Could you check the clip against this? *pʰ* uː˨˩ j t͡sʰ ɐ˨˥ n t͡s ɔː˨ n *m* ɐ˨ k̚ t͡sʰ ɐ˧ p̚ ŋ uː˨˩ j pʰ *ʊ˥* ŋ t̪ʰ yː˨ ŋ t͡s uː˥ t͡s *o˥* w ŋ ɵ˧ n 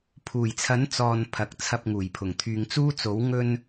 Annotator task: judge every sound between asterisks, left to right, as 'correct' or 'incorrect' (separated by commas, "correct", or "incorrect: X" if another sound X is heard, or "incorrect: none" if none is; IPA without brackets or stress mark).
correct, incorrect: pʰ, incorrect: ʊ˨˩, incorrect: o˨˥